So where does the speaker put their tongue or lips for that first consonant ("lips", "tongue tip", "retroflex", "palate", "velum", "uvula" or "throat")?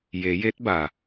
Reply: palate